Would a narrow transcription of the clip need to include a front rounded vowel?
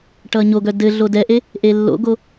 yes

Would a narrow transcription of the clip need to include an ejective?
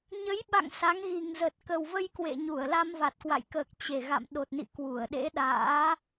no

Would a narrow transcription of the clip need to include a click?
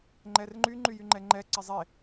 yes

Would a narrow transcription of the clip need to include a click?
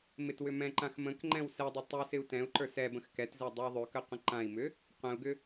yes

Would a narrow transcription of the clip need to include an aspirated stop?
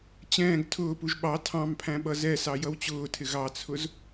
yes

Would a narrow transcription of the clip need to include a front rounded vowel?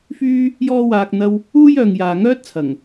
yes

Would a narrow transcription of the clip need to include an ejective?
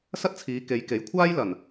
no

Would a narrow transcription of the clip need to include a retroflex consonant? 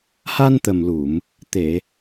no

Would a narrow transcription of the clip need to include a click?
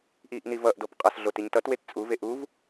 no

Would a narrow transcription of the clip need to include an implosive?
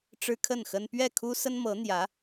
no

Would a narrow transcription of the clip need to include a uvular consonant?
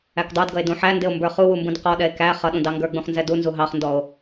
yes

